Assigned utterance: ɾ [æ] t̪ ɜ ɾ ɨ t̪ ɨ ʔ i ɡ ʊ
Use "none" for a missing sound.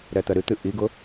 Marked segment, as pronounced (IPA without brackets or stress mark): ɛ